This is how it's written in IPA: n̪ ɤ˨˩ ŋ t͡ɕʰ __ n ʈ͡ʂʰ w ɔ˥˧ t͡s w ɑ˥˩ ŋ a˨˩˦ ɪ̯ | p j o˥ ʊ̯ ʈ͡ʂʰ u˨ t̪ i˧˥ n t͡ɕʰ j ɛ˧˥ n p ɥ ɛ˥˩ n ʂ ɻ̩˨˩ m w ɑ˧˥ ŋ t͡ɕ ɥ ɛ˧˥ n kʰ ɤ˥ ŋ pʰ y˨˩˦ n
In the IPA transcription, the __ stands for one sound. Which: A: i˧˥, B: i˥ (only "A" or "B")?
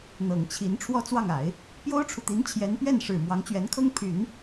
A